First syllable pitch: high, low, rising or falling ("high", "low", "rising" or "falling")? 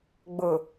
low